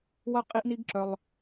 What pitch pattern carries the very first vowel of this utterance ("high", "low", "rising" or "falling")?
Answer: high